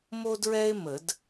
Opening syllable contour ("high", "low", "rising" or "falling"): high